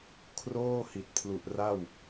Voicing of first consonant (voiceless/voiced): voiceless